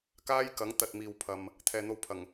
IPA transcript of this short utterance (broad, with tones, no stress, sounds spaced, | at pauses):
k aː˥ j k ɐ˨˥ ŋ t̪ ɐ˨ t̚ m iː˨ w pʰ ɐ˨ m | t̪ʰ ɛː˨ n̪ o˧ w pʰ ɐ˨˩ ŋ